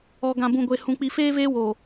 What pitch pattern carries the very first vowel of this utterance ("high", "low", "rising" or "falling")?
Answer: low